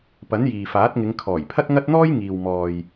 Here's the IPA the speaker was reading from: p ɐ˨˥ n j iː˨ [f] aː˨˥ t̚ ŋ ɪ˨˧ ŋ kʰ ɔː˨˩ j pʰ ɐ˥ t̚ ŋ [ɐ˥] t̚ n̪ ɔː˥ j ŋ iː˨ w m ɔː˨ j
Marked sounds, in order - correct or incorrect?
correct, correct

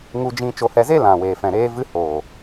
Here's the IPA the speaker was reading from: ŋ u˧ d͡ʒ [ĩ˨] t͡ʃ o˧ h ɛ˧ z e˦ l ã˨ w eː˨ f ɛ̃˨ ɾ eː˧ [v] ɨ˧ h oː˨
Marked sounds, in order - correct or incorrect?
incorrect: ĩ˧, correct

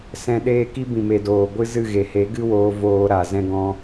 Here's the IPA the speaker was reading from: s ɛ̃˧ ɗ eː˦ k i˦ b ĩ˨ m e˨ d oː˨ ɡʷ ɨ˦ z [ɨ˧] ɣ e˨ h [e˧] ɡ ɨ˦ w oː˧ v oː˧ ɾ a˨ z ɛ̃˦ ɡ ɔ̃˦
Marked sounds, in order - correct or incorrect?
incorrect: ɨ˦˨, incorrect: e˨˦

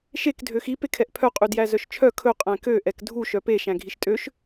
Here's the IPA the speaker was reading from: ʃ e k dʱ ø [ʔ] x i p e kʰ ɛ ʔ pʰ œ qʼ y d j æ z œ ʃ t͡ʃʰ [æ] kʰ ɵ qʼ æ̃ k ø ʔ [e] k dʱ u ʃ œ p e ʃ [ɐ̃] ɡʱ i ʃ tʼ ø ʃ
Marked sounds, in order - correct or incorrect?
incorrect: none, incorrect: œ, incorrect: ɛ, incorrect: æ̃

